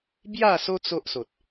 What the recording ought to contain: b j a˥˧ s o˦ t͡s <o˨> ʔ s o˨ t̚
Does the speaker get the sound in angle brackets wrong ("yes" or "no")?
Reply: yes